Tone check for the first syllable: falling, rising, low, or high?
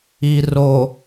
low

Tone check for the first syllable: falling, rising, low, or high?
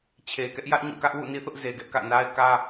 low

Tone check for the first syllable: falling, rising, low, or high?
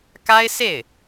high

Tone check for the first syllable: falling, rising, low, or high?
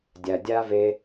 low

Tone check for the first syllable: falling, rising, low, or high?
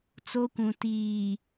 high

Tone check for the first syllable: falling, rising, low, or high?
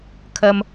high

